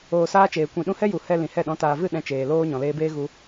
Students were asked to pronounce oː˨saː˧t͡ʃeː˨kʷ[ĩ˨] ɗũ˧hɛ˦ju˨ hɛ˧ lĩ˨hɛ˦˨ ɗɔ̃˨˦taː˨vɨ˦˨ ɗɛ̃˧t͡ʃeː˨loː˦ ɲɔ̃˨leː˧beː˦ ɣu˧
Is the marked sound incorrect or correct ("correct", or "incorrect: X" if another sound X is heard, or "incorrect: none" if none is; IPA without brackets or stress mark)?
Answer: correct